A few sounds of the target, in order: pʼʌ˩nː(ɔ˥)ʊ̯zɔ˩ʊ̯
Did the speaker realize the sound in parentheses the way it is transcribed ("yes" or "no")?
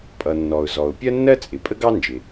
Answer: no